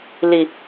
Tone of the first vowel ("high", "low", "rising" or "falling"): high